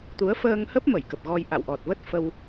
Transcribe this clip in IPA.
t̪ u˨˦ ə̯ f əː˧ ŋ h ə˦˥ p̚ m ə˧˩ j k ə˨˩ p̚ ɣ ɔ˧ j ʔ a̰˧˨ w ʔ ɔ˨˩ t̚ v ə˦˥ t̚ f ə˧ w

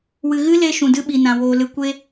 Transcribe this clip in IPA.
w ɨ˨ ɣ ɨ˦ l e˧ ʃ ũ˨ d ɨ˦ ɓ i˨ n ã˨ w oː˨ l ɨ˨ kʷ e˦

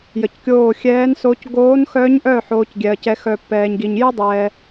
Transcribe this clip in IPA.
j ə˩ c kʲ oː˧˩ xʲ ɛː˨˦ n s o˨˦ c ɡ oː˨˦ n x œ˨˦ ɲ ʔ œ˧˩ ħ oː˨˦ c ɡʲ ɛ˩ ɐ̯ c ɛ˨˦ x œ˧˩ pː ɛː˩ ɲ ɡ i˩ ɲ j ɨ˥ dˤ ɛː˩

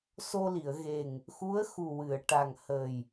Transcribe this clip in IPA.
s o˧ l i˨˩˨ ə̯ ɣ e˨˩ ŋ | x u˧˥ ə̯ x u˨˩ w ɨ˨˩˨ ə̯ ʈ a˨˩ ŋ h əː˨˩ j

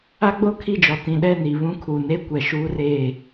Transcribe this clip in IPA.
a˦ ɡ͡b o˦ kʰ i˦˨ d͡ʒ ɔ˨ t ĩ˨ ɗ ɛ˦˨ n i˨ β ũ˦ kʰ uː˨ n e˦ kʷ ɛ˨ ʃ uː˦ r eː˦˨

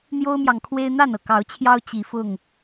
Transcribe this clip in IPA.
n̪ j o˦ ʊ̯ m j ɑ˨ ŋ kʰ w e˦ ɪ̯ n̪ a˥˨ n ɤ˩ k ɑ˨˦ ʊ̯ t͡ɕʰ j ɑ˦ ʊ̯ t͡ɕ i˨˦ f ʊ˥˨ ŋ

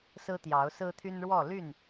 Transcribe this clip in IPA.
s ɹ̩˦ t̪ j ɑ˨˦ ʊ̯ s ɹ̩˦ t̪ʰ y˦ n ɻ w ɔ˥˨ l y˥˨ n

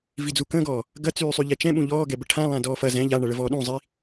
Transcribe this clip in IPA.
v i d͡z u k ə̃ː ɡ ɔː | ɡ ɐ t͡s yː sˤ y ʎ ɛ t͡ʃ ɛ̃ ɓ ũ ʎ ɔː ɡ ɛ b ə ʈʰ ã lˠ ã d ɔː f ɐ z ɛ̃ ʎ a ɳ ɐ ɭ ə v ɔː ɗ ũ zˤ i

